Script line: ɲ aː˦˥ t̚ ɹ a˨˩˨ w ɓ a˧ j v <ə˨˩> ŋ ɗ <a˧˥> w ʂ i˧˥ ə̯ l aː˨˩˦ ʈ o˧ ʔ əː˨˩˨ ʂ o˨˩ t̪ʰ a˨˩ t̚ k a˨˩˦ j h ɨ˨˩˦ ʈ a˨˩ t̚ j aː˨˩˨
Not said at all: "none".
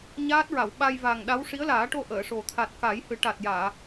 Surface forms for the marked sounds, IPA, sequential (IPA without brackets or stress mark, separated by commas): a˨˩, a˧˥